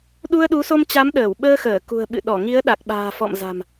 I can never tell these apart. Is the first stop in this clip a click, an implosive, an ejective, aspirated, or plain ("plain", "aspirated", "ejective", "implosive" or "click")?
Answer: implosive